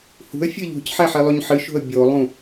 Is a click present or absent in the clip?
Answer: absent